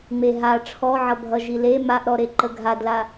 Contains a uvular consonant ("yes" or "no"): no